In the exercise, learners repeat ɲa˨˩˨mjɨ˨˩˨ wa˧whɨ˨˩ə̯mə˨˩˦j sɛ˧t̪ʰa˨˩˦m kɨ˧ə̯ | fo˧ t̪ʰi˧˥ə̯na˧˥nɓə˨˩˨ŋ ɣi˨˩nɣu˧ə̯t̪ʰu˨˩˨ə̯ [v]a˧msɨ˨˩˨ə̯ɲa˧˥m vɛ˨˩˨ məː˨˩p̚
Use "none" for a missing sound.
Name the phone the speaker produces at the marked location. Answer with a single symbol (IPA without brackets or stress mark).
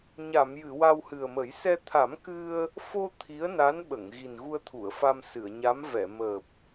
f